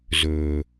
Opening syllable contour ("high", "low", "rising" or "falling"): low